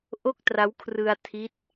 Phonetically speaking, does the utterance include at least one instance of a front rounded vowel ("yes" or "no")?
no